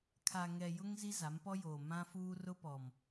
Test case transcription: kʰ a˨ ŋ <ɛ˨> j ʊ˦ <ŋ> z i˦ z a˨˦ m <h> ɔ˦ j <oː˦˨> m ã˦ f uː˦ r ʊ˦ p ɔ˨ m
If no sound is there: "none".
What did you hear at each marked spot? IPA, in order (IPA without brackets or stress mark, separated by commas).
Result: ɛ˨, ŋ, p, oː˨